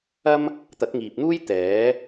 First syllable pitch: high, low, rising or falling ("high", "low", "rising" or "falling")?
high